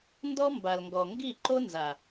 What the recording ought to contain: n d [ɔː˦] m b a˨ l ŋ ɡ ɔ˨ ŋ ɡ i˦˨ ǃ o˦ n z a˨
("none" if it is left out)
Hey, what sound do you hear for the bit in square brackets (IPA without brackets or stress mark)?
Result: ɔ˦